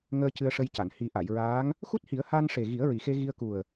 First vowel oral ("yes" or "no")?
yes